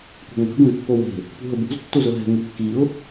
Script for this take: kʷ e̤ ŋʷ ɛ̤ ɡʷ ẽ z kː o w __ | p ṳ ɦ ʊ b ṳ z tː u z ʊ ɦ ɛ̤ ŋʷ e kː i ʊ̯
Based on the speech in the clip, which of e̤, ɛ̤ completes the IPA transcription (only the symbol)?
e̤